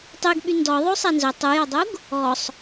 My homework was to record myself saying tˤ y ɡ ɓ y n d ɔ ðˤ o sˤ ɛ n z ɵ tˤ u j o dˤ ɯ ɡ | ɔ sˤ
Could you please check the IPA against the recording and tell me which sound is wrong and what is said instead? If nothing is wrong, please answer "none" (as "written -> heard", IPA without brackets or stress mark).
ɯ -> u